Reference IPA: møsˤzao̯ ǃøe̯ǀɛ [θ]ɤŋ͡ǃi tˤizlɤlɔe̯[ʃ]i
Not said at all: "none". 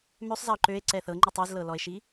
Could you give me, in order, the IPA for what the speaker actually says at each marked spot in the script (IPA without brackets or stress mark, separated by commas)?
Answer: θ, ʃ